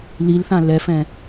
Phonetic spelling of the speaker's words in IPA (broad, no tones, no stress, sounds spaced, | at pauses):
l i l θ ã l ɛ f ɛ̃